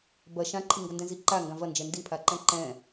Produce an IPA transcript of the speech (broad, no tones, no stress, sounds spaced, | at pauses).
b ɐ ʃ ã ǃʰ ɨ ŋ ɡ ɐ n d ɛ̃ z i ǃ a ŋ ɡ ã v ɐ n d͡ʒ ɛ n d i pʰ a ǃ ɛ̃ ǃ ɛ̃